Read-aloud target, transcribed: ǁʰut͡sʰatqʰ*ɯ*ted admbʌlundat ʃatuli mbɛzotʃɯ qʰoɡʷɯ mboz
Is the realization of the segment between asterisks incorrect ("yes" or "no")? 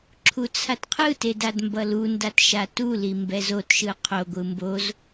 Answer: no